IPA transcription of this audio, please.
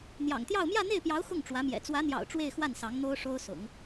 n̪jɑ̰˨˩ŋt̪jɑ˥˧ʊ̯ mjä˥˧n̪e˥˩ɪ̯pjɑ˧˥ʊ̯ xʊ˥˩ŋ ʈ͡ʂwä˧˥mjɛ̰˨˩ t͡swä˧˥n̪jɑ̰˨˩ʊ̯ ʈ͡ʂwe˥˧ɪ̯xwa˥˩nsɑ˧˥ŋ n̪o˥ʊ̯ʂo˥ʊ̯sʊ̰˨˩˦ŋ

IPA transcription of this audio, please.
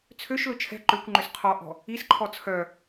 t͡sʰøʃlʊ t͡ʃʰɛ̤ ǃøkʷŋ͡ǃʏs qʰɔʔɔ̤ | isǃʰɔ t͡sʰœ

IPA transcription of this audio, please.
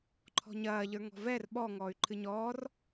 ǃʰɔ̤ɲɐː ʎə˞ŋɔ̤vɛr ɓɔ ŋɔːy̯ǃʰɨɲɔːr

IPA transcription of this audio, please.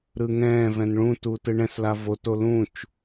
ɾɯŋɛ̃vɛ̃n ɭũtu tɯɳɛ̃sla voto lũt͡ʃ

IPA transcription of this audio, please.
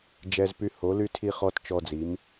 d͡ʒɛ˦zpy˦ ho˨˥ly˦ tʰi˦χɔ˦t t͡ʃɔ˦d͡zi˨˥m

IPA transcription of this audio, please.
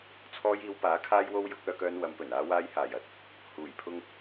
t͡sʰɔː˧jiː˨˧wpaː˨˥ kʰaː˧jwo˧w jʊ˨˥k̚œː˧kœː˧n wɐ˨mpɵ˨˩n aː˨waː˨˧j haː˨˩jɐ˥t̚ | huː˨˩jpʰʊ˧ŋ

